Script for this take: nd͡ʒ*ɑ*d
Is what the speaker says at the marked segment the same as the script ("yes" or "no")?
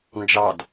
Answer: yes